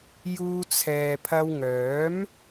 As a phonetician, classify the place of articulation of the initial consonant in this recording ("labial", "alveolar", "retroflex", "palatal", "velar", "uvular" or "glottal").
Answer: palatal